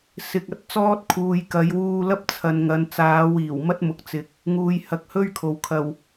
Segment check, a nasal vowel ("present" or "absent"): absent